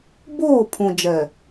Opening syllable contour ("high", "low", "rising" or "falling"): falling